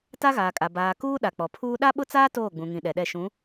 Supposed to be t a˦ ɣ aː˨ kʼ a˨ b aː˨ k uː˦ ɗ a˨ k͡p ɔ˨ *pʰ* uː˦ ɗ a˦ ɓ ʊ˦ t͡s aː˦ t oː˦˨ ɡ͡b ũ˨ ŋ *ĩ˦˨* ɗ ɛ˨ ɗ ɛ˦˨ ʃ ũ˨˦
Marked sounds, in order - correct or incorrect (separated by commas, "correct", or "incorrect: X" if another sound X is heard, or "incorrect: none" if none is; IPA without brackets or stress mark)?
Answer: correct, incorrect: ĩ˨